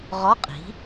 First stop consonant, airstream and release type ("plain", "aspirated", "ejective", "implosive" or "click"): ejective